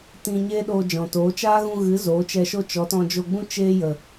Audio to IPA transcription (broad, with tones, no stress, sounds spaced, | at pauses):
t ĩ˧ ɲ eː˦ ɗ oː˧ d͡ʒ ɔ̃˨ t oː˨˦ t͡ʃ aː˦ ɣ ũ˧ ɣ ɨ˨˦ z oː˨˦ t͡ʃ ɛ˧ ʃ o˦ t͡ʃ ɔ˨˦ t ɔ̃˧ d͡ʒ o˧ ɡ͡b ũ˦ t͡ʃ eː˦ j ə˨